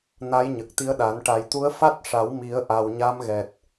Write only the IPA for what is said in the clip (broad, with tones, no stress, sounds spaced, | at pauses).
n a˧˥ j ɲ ə˨˩ k̚ t̪ i˧˥ ə̯ ɗ a˨˩˦ n ʈ a˨˩ j t̪ u˧˥ ə̯ f a˦˥ t̚ ʂ a˨˩˦ w m i˨˩˦ ə̯ ʔ a˨˩ w ɲ a˧˥ m ɣ ɛ˨˩ t̚